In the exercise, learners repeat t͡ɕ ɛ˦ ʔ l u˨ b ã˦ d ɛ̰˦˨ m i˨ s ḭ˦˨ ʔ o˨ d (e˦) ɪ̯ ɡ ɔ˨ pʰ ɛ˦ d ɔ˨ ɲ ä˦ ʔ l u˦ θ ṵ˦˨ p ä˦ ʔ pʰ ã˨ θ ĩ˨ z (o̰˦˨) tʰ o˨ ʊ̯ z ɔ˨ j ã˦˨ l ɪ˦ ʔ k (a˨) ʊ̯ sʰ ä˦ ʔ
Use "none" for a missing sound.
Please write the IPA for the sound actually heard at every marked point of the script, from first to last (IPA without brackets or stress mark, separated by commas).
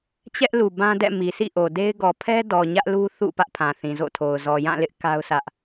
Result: e˦, o̰˦˨, a˦